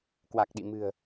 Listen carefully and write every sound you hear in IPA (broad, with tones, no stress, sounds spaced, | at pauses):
k w a˨˩ k̚ ɗ ḭ˧˨ m ɨ̤˨˩ ə̯